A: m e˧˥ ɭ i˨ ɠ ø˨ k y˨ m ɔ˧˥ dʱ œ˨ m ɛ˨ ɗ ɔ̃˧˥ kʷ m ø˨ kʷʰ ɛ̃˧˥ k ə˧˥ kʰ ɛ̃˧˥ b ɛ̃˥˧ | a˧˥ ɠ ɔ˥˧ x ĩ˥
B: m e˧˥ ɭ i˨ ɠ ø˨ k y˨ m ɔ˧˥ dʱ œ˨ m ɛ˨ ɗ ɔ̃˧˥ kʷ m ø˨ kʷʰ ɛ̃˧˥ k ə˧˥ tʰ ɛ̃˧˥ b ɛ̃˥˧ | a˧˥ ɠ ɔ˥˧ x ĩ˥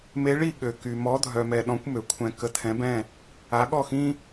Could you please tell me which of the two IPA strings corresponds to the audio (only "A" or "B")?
B